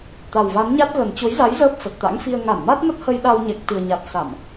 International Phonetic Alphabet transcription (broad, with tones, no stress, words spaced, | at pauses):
t̪a˨˩wva˨˦nɲa˦˥t̚ ɣə˨˩nt͡ɕo˨˦jza˨˦j zəː˦˥p̚fə˨˩t̚t̪a̰˧˥ŋfi˧ə̯ ŋa˧˩nma˦˥t̚mə˦˥t̚hə˧j ɗa˧wɲɛ˨˩k̚t̪ɨ˨˩ə̯ɲa˨˩t̚ sa˧˩˨m